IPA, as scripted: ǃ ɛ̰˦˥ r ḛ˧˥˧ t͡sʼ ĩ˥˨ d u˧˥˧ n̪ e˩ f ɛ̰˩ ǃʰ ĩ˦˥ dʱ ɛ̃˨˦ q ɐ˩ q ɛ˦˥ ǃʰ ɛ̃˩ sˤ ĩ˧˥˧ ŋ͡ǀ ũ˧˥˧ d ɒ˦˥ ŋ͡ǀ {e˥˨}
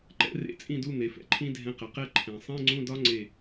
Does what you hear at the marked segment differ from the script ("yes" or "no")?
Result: no